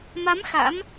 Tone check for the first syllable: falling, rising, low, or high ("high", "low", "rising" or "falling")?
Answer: rising